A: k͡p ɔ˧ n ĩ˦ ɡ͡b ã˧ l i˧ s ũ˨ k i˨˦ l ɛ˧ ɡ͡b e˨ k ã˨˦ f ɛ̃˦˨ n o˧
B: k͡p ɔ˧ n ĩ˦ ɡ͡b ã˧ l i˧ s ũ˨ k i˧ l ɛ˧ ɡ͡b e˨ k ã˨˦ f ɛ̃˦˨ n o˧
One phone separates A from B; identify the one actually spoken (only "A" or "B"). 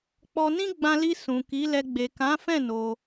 A